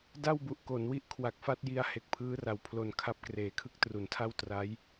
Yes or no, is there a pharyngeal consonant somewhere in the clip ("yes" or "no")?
no